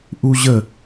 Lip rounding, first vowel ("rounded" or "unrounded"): rounded